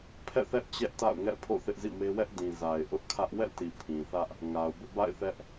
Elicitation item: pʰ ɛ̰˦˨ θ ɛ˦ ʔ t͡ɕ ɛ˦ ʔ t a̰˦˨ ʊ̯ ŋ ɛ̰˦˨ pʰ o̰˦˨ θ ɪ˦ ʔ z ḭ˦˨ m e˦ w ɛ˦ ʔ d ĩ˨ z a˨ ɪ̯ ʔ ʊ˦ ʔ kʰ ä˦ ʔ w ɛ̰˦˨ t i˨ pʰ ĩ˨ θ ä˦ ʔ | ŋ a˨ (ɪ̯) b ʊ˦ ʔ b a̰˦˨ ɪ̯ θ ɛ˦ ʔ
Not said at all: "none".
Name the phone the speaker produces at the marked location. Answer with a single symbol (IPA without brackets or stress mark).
ʊ̯